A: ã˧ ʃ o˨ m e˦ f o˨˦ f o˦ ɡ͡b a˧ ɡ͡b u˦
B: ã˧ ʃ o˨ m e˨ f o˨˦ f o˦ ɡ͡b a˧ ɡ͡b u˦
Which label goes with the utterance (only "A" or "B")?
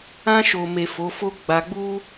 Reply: B